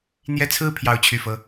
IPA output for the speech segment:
n̪ j ɛ˥˧ t͡sʰ ɹ̩˥˧ pʰ j ɑ˥˧ ʊ̯ t͡ɕʰ y˥˩ f ɤ˥

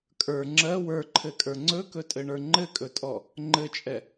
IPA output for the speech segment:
kʼ ə˞ ŋ͡ǁ ɜ w ə˞ ǃʰ ɘ kʼ ə˞ ŋ͡ǀ ɵ k ɵ tʼ ɘ ɳ ə˞ ŋ͡ǃ ɘ kʼ ɵ tʼ ɔ | ŋ͡ǃ ɘ t͡ʃʼ ɛ

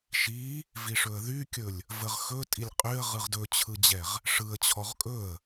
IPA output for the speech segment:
ʃ i | v i ʂ ɵ ə̯ ð y kʲ ɵ lʲ | v ə ʁ x ɵ tʼ i lʲ qʼ y ə̯ ʁ ɯ ʁ d ɵ t͡ɕʰ ɯ d͡ʑ ɛ ʁ | ʂ ɯ ə̯ t͡ɕʰ ɔ ʁ kʼ ɵ ə̯

